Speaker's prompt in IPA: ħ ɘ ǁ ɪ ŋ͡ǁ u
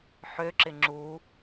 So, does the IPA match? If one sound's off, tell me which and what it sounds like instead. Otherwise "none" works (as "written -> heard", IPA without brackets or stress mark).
ɘ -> ø